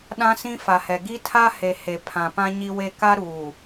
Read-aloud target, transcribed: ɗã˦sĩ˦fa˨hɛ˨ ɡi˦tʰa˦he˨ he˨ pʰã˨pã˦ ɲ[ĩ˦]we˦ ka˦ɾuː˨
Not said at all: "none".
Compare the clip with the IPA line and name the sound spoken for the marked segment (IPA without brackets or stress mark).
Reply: i˦